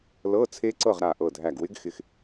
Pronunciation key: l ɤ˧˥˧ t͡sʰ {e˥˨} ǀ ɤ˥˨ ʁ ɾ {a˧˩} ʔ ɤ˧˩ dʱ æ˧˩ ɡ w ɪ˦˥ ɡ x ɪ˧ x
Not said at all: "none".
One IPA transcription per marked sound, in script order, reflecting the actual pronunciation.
e˦˥, a˧˩

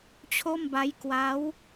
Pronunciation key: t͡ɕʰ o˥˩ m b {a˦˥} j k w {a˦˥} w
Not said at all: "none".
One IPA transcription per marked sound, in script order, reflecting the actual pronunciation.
a˦˥, a˦˥

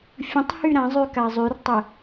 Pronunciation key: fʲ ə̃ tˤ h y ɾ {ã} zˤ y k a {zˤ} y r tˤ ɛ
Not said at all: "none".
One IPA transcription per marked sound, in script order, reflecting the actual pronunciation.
ã, zˤ

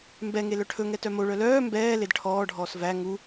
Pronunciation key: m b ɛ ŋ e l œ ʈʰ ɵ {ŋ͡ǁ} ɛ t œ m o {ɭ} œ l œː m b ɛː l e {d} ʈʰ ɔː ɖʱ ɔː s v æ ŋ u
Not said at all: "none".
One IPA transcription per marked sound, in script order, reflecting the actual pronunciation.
ŋ, ɭ, d

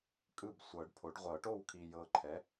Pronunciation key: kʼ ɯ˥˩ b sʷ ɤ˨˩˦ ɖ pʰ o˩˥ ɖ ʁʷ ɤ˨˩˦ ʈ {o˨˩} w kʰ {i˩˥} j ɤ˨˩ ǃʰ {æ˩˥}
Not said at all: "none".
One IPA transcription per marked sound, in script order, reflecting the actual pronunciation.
o˥˩, i˨˩, ɛ˩˥

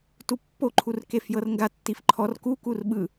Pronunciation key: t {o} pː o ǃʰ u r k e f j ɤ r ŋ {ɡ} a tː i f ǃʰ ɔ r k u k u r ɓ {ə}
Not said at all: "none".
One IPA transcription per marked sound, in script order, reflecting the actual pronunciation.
u, ɡ, ɯ

